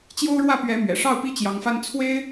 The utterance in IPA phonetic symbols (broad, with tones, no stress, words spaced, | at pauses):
t͡ɕjo˥ʊ̯ɻwä˥˩pɥɛ˧˥ mɥɛ̰˨˩ʂɑ˥˩ʊ̯pi˥ t͡ɕjɑ˧˥ŋfa˥n t͡sʰwe˥ɪ̯